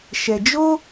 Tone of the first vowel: low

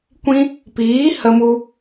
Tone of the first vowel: high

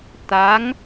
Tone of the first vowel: rising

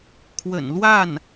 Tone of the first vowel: low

